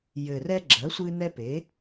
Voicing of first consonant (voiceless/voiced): voiced